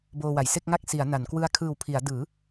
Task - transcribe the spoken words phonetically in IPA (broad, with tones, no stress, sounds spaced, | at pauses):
b oː˧ w a˩˦ j s e˥˩ k̚ ŋ a˥˩ k̚ s i˩˦ a̯ n a˩˦ n k w ɯ˧ a̯ kʰ ɯː˨˩ w pʰ i˩˦ a̯ d ɯː˩˦